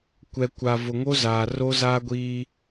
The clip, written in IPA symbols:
kʷ ɛ˨ kʷ a˨ v ʊ˨ ŋ o˦ z aː˨ r o˦ z aː˦ ɡʷ iː˦

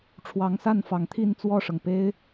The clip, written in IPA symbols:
ʈ͡ʂʰ w ɑ˨˦ ŋ s a˥˨ n f ɑ˨˦ ŋ t̪ʰ i˦ n t͡s w ɔ˥˨ ʂ ɤ˩ ŋ p e˦ ɪ̯

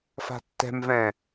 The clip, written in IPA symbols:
f a̤ tː ɛ̤ m v ɛ̃

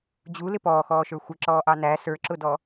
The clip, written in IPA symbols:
d͡ʑ u l ɪ p ɔː x ɔː ʃ ə˞ xʷ ɪ ǁ ɔː ʔ ɑ n æ s ə˞ ǁ ʊ d ɔ

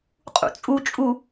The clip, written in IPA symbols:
qʼ ṵ t͡sʼ u t͡ʃʼ u

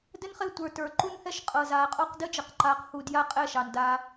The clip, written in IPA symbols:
d ɘ˦ n χ e˦˨ tʷ ə˞˨ t ə˞˨ ǃ u˦ n h ɛ˦ ʃ qʼ ɤ˨ z aː˨ qʼ ɔ˦ q d ɘ˦ d͡ʒ ɘ˨ q ǃ aː˨˦ q h u˨ d j a˦˨ qʼ ɛ˦˨ ʃ ɑ˨ n d aː˦

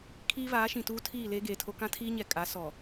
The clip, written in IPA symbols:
kʰ iː˦ β aː˨˦ ʃ ĩ˨ t uː˦ tʰ iː˦˨ l eː˦ ɡ eː˨ tʰ o˦ k ã˦ tʰ iː˦ ɲ ɛ˨ kʼ a˨˦ s ɔ˨

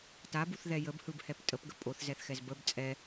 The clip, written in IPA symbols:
t a b u θ ð ɛ j ə b h ɯ b h ɛ p tʼ ə p ɡ ə pʼ o θ z ɛ θ x ɛ z b ə b t͡sʼ ɛ

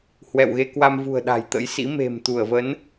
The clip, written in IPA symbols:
h w ɛ̰˧˨ w ɣ e˧ k w a˧ m v ṳ˨˩ ə̯ ɗ a̤˨˩ j t̪ ə̰˧˥ j s ḭ˧˥ m e̤˨˩ m t̪ u˧˩ ə̯ v ə˨˦ n

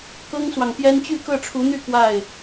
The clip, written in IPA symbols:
k ɤ˥ ŋ s w ɑ˨ ŋ p j ɛ˥ n t͡ɕ y˥˧ k ɤ˥˩ ʈ͡ʂʰ u˧˥ n̪ y˥˧ k w a˥˩ ɪ̯

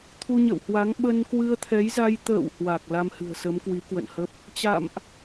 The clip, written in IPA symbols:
t̪ʰ u˧ ɲ ə̰˧˨ w h w a˨˦ ŋ ɓ ə˧ n k w ɨ˧ ə̯ t̪ʰ ɛ˨˦ j z a˧ j t̪ ə̰ː˧˨ w h w a˨˩ k̚ l a˧ m h ɨ̤˨˩ ə̯ s ə˨˦ m k w i˨˦ k w ə̰˧˨ n h ə˦˥ p̚ | t͡ɕ a̰˧˨ m ʔ

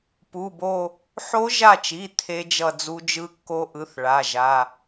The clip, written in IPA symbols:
p u˩˧˩ b o˦˨ | ħ o˦˥ ʒ a˦˨ t͡ʃ i˩˧˩ t̪ʰ e˦˥ d͡ʒ ʌ˦˨ d͡z u˦˥ d͡ʒ ɯ˦˥ kː o˦˥ ʔ ɯ˩˧˩ θ ɭ a˩˧˩ ʒ a˩˧˩

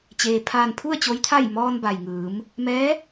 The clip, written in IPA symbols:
t͡ɕ eː˩ pʰ aː˧˩ n pʰ u˥˨ ə̯ t͡ɕ o˧˥ j t̪ʰ a˥˨ j m ɔː˧ n b a˩ j ŋ ɯː˩˧ m | m ɛː˧˥

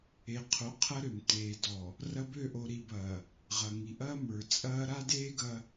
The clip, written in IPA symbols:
e˨ qʰ o˨˦ qʰ ɐ˦ ɾ ø˨ m t eː˨ d ɔ˨ | r ɐ˦ b ø˦˨ ʔ o˨ ɾ i˨ b ɐː˨ | ʁ ɐ˨ ŋ i˨ ʔ ɐː˦ m ə˞˨ t͡sʼ ɐː˦ ɾ a˦ d eː˦ ɡ ɐ˦

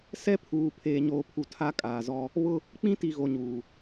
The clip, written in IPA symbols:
s ɛ˦ pʰ uː˨ pʰ eː˨ ɲ oː˨ pʰ u˨ tʰ a˦ kʼ aː˨ z ɔ˦ | β ʊ˦ | k͡p ĩ˦ t i˨ ɣ o˨ ɲ uː˨

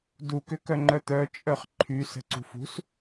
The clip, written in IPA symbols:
d u k ʏ k œ ŋ͡ǃ œ t̪ œ t͡ʃʼ œ χ ǃʰ y s ə̤ ǀ ṳ f ṳ s

